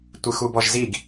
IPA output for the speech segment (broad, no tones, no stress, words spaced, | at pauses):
tʷɨxubɔʒziɡ